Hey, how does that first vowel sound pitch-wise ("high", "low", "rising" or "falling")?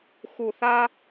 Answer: low